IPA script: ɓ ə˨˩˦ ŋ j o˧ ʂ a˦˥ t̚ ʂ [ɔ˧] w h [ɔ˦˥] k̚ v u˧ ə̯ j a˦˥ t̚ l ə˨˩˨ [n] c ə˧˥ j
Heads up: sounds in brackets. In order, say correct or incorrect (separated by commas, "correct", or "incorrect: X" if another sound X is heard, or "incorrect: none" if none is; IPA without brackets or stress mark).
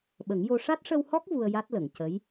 incorrect: ə˧, correct, incorrect: ŋ